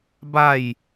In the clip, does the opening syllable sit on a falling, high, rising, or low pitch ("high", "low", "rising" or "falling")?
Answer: falling